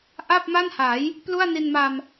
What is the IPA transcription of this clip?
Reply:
ʔ a˥˩ p̚ m a˥˩ n h a˩˦ j | p l u˥˩ a̯ n i˧ n m a˧ m

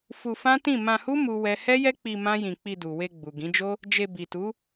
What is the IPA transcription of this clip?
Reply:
f u˧ f ã˦ t ĩ˦˨ m ã˧ h u˦ m u˦ w ɛ˦ h ɛ˦ j ɛ˦ k͡p i˧ m ã˦ j ĩ˧ k͡p i˧ d u˨ w e˧ ɡ͡b u˨ ɡ ĩ˨˦ d͡ʒ o˦ | d͡ʒ e˧ b i˨ t u˨˦

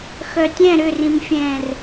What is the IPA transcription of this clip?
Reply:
x œ tʲ ɛ̃ ɾ ʏ r ĩ m fʲ ɛ̃ː r

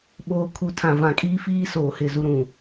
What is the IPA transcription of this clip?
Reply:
ɓ oː˨ kʰ u˨ tʰ ã˨ v ã˨ kʼ iː˦ f iː˦ s oː˨ h ɪ˦˨ z u˦ ɾ ũ˨

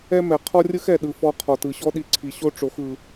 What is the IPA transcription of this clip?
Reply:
ɛ˦ m ɛ˨ qʰ ɔ˦ rʲ ɯ˦ x ɛ˨ ɗ ɯ˨ f ɔ˧ qʰ ɔ˨ t ɯ˨ ɕ ɔ˦ ɗ i˧ ǀʰ i˨ ɕ o˦ ʈ͡ʂ o˨˦ x ɯ˧

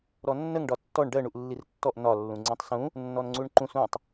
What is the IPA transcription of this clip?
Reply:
ɾ ɔ nː ə ŋ ɖ ɒ tː ɔ ɳ ɖ ɜ ɳ u ʔ lː i r tː ɔ ʔ n ɒ lː ũ ŋ͡ǀ ĩ tˤ s ũ | nː ɔ n ŋ͡ǀ u ɳ ǃ ũ s ũ tˤ

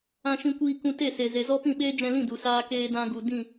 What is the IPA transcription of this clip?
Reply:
ã˧ ʃ ĩ˧ kʷ iː˧ k ũ˧ t e˦˨ s e˨ z e˨ z ɔ˦ p ĩ˦˨ ɓ eː˦ d͡ʒ ɛ̃˧ l ĩ˦˨ d u˨ s aː˧ k eː˧ d ã˧ ɡ u˨ d ĩ˦˨

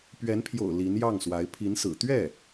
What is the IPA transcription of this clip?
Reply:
p ɥ ɛ˧˥ n pʰ j o̰˨˩ ʊ̯ l i˧˥ n j ɑ˥˩ ŋ s w a˧˥ ɪ̯ pʰ i˧˥ n s ɹ̩˨˩ t̪ ɥ ɛ˥˩

